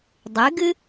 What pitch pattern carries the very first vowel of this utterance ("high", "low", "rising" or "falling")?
rising